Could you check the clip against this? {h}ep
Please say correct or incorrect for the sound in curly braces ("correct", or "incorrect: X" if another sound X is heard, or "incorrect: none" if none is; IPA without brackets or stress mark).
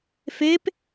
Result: incorrect: f